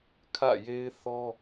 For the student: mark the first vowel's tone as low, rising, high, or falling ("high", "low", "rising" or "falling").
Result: falling